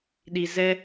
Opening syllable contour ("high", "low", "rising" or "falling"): low